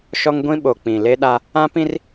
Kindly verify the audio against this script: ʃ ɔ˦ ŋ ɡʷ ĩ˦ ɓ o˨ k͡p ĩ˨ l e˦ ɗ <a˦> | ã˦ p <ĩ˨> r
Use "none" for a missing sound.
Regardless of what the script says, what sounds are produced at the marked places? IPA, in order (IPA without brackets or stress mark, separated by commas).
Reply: a˦, ĩ˦